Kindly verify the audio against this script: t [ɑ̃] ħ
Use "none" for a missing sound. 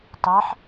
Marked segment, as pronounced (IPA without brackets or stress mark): ɑ